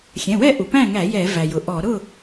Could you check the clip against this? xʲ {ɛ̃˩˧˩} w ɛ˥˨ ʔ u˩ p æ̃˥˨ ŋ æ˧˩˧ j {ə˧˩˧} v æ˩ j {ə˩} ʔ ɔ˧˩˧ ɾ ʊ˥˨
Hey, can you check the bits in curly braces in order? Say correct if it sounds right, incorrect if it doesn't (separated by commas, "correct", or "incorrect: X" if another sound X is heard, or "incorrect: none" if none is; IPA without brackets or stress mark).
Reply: correct, incorrect: ɛ˧˩˧, incorrect: ʊ˩